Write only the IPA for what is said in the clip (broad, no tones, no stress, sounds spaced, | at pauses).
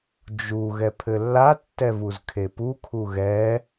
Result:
d͡ʒ u ɣ ɛ pʰ ɘ lː a tː ɛ v u z kʰ e p u kʰ u ɣ ɛ